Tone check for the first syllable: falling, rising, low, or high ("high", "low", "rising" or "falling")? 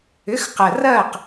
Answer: rising